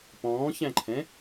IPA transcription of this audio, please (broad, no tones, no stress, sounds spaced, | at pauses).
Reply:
p ɔ̃ː ç æ̃ ǃʰ ɛ̃